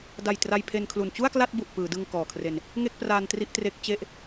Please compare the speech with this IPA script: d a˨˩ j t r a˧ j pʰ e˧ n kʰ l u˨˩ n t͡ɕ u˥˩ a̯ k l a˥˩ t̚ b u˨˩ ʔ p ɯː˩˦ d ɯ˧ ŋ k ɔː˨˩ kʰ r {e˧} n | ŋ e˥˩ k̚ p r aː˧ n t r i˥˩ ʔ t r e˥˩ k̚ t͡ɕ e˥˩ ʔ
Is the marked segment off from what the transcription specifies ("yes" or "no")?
no